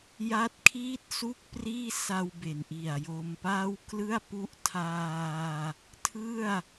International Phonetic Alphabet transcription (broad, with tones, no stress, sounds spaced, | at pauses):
j a˦˥ t̚ kʰ iː˥˩ t̚ s u˥˩ k̚ p r iː˥˩ s a˧ w b e˩˦ n ʔ i˨˩ a̯ j o˧ m p aː˥˩ w k l ɯ˥˩ a̯ p u˦˥ ʔ tʰ aː˧ | tʰ ɯ˥˩ a̯